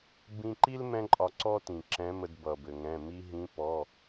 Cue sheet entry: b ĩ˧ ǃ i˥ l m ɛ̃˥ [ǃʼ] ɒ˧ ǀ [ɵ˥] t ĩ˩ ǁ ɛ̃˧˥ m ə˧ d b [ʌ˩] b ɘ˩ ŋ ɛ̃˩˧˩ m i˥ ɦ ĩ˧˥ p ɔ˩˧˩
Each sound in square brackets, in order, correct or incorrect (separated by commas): correct, incorrect, correct